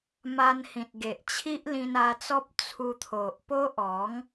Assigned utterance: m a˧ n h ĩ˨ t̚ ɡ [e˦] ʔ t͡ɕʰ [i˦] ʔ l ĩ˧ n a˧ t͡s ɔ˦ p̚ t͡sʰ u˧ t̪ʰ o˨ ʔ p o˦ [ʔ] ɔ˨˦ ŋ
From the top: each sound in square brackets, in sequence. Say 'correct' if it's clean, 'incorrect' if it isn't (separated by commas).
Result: incorrect, correct, correct